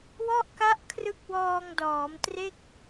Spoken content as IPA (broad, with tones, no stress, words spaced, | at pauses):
wɔ˥˩ʔka˦˥ʔ kʰrɯ˦˥k̚wɔː˧ŋdɔː˩˦m tre˥˩k̚